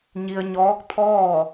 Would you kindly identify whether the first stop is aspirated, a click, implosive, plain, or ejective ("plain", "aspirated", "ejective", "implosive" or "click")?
plain